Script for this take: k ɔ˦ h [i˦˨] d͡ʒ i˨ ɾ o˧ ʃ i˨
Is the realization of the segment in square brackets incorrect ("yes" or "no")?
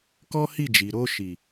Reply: no